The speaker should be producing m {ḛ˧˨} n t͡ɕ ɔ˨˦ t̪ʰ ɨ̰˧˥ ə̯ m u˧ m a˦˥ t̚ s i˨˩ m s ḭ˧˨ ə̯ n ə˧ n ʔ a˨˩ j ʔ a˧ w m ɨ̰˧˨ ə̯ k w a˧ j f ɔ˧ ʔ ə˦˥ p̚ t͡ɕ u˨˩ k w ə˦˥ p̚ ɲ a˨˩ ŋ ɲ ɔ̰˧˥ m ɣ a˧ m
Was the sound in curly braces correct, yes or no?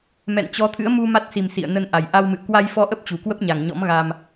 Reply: no